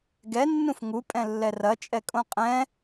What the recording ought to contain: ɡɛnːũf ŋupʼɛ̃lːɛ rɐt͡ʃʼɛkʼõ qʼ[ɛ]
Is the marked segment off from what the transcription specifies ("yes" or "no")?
yes